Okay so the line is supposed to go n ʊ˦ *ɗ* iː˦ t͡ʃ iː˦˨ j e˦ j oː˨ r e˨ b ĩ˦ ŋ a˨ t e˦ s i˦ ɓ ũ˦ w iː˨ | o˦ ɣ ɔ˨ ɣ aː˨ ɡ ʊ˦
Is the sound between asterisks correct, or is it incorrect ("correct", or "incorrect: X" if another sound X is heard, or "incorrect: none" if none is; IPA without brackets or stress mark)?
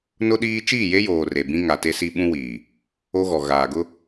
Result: correct